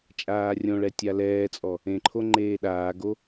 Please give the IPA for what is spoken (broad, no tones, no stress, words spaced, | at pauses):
t͡ʃʼaːrʲõɭɛ tʲalɛːt͡sʼɔ | ẽǃʰo ŋ͡ǃeːɗaːɡo